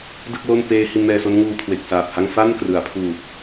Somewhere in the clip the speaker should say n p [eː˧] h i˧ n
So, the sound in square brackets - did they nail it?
yes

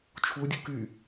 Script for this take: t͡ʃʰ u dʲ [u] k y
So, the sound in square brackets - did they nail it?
yes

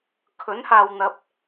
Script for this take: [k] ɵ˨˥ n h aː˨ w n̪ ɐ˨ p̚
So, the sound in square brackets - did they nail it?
no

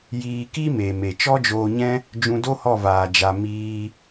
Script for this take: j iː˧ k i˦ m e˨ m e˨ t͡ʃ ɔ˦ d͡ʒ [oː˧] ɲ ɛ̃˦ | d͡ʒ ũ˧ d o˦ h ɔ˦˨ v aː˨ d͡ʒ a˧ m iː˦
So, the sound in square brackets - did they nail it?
yes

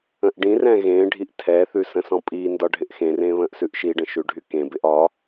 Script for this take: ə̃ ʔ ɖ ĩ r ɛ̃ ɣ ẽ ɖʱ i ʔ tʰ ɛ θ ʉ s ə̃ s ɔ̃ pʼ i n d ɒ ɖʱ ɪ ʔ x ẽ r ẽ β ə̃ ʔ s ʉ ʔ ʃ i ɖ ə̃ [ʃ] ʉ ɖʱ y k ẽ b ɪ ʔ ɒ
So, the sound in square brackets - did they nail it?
yes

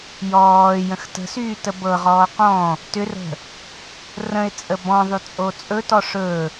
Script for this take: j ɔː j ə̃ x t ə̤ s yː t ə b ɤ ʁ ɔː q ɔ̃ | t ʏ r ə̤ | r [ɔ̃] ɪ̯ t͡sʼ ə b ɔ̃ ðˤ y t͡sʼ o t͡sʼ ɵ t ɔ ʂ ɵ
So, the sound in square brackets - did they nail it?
no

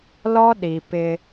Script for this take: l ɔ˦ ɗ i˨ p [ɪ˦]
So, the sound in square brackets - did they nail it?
yes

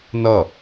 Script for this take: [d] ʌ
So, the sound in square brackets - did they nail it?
no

